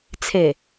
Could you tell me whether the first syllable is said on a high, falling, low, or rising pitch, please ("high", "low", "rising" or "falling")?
low